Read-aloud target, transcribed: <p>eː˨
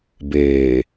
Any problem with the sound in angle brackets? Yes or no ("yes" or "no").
yes